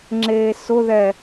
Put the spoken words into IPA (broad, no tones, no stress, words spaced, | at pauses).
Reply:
ŋ͡ǁeːsʊðɛ